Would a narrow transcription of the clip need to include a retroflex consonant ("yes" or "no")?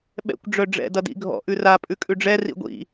yes